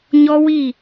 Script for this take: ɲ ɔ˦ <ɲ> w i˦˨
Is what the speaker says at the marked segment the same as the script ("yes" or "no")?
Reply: no